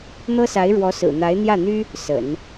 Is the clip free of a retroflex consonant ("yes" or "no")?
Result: no